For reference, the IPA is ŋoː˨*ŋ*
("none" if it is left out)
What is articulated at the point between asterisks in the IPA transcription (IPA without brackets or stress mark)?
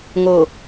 none